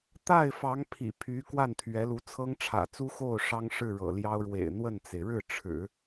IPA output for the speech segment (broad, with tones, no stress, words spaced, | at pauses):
t̪a˥˩ɪ̯fɑ˧˥ŋ pʰḭ˨˩ pʰy˧˥ kwa˥˩nt̪ʰɥɛ˧˥lu˧˥ t͡sʰɤ˥ŋʈ͡ʂʰä̰˨˩ t͡su˥xo˥˩ʊ̯ ʂɑ˥ŋʂɻ̩˥˩ɻɤ̰˨˩ljɑ˥ʊ̯ ɻwḛ˨˩ɪ̯n̪wə˥˩nt͡se˩ɪ̯ ɻɻ̩˥˩ʈ͡ʂʰɻ̩˨˩˦